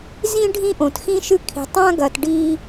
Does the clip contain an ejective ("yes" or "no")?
no